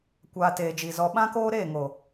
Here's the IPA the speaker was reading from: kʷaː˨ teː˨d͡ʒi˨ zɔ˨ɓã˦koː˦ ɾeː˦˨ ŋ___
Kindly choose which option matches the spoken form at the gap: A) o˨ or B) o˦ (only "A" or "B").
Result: A